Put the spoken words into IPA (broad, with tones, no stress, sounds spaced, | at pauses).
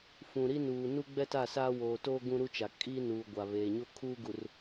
f ũ˨ ɾ i˦ n uː˨ n u˦ ɡ͡b ɛ˦ t a˦˨ s aː˦ w oː˨ t oː˦ ɡ ũ˦ ɾ u˦ t͡ʃ a˨ kʼ i˦ n uː˨ ɡʷ a˨ β eː˨ ɲ o˦ kʰ uː˦ ɡ u˨ r